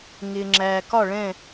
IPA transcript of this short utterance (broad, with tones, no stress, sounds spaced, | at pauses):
ŋ ɪː˨ ŋ͡ǁ æː˨ k ɒ˥˨ ɭ ɛ̃˥˨